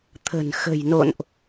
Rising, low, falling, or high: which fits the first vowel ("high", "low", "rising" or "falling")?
low